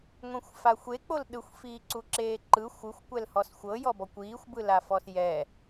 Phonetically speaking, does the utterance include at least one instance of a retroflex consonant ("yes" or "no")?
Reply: no